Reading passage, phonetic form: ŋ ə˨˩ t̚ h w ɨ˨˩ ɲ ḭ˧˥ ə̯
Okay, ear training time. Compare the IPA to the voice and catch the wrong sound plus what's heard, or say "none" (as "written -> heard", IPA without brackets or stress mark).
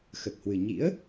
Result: ŋ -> x